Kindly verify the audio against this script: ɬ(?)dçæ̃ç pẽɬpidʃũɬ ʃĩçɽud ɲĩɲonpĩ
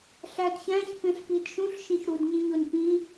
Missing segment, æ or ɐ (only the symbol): æ